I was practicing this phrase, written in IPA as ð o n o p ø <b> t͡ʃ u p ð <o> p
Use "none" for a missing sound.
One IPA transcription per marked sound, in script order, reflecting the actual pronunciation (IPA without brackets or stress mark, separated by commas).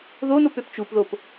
p, o